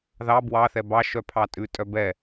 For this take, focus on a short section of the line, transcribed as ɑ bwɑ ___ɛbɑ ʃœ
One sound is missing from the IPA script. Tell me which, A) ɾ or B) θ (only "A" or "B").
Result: B